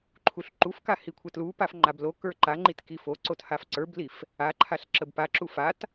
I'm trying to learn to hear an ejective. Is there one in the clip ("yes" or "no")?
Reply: no